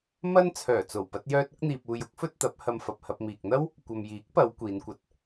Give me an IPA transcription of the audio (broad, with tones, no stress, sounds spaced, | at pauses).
m ɐ˥ n t͡sʰ œː˨˩ t͡s o˨˩ w p ɐ˧ t̚ j œː˧ t̚ ʊ˥ k̚ n̪ iː˧ p̚ uː˧ j ʊ˥ k̚ f ɵ˥ t̚ t̪ ɐ˨˥ p̚ h ɐ˧ m f ɐ˨ p̚ h ɐ˧ p̚ m iː˨ k̚ n̪ ɐ˥ w | kʷ ɐ˨ m j iː˨˥ k̚ p ɐ˨˧ w kʷ iː˨˧ n kʷ ɐ˧ t̚